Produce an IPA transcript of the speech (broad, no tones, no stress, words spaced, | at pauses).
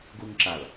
ɡuŋǁal